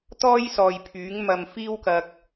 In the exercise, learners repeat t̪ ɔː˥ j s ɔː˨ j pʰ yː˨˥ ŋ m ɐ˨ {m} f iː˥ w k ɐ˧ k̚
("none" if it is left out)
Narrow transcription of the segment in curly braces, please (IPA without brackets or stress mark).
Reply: m